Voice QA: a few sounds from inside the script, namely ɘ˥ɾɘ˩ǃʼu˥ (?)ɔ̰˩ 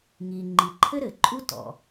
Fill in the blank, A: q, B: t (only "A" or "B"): B